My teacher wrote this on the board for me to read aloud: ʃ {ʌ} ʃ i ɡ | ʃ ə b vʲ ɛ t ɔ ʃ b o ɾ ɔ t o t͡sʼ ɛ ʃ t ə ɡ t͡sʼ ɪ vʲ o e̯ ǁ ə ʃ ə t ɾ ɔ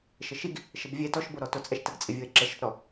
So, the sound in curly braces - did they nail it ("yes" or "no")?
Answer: no